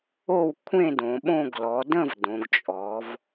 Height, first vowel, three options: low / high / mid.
mid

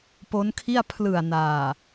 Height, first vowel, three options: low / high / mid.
mid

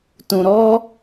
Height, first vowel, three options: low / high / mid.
high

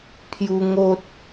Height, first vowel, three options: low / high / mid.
high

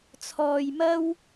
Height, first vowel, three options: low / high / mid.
mid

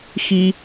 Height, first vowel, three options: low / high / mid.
high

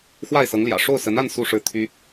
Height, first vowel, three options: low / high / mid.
low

